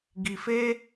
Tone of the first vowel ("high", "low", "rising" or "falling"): low